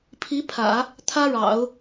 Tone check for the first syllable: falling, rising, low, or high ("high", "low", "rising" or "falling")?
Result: rising